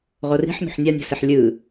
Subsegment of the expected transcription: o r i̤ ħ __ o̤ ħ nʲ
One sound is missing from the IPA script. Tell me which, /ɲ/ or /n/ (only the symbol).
n